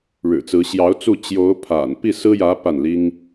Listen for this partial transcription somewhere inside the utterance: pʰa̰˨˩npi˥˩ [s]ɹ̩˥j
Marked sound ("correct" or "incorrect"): correct